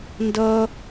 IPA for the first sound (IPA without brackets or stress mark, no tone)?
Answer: n